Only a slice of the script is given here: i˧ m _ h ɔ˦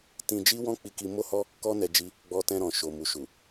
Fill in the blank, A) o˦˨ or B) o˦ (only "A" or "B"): B